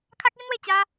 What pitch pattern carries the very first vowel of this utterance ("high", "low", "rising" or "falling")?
high